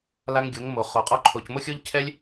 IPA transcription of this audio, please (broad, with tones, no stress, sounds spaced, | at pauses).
l a˦ ŋ ɡʲ o˨˦ ŋ m o˨ χ o˨ qʼ ɔ˧ ǃʰ o˨ c m o˦ xʲ o˦ ʎ cʰ ɛ˦ lʲ